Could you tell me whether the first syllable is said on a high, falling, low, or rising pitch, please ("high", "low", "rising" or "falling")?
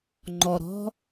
low